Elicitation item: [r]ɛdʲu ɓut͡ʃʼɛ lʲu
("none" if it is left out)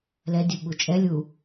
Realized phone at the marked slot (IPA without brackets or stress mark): l